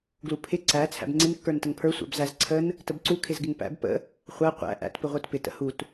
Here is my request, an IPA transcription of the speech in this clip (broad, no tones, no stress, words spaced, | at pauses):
ɡlupʰɪ ǀæ t͡sʰæ̰bŋ͡ǀɪn kːə˞ntəŋpʰə˞ sʷæ̰bzæz ǀʰən | təbǀu kʰɪzɡɪŋpæ̰b pə̰ | χʷæ qʷæ̰ ʔæ̰t pɪʁʷə˞tpɪ tə̰hut